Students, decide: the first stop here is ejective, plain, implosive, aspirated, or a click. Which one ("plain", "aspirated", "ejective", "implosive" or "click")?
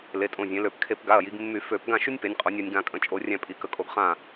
ejective